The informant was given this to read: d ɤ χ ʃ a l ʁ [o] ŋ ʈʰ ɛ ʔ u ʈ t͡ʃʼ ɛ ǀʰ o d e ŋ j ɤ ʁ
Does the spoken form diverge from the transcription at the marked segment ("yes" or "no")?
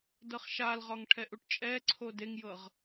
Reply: yes